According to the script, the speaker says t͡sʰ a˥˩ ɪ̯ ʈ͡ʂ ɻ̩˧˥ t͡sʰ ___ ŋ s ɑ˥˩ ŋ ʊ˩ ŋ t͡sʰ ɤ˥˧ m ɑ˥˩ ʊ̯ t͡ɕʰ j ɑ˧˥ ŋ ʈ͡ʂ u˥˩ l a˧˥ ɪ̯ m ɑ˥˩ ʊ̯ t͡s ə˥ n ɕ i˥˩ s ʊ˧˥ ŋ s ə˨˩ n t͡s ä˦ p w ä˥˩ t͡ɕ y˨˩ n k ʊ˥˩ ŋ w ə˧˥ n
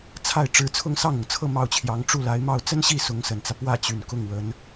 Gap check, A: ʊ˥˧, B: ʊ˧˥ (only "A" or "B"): A